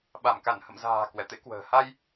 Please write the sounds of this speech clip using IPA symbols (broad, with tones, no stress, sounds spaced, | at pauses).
ɓ a˧˩ m k a˧˩ n h ə̰˧˨ m z a̤ː˨˩ k w ɛ˧˩ t̪ ḛ˧˥ k w ə̤ː˨˩ h a˧ j